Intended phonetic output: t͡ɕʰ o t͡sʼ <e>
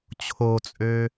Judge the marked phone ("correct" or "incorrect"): incorrect